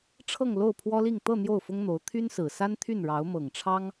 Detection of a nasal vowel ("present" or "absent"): absent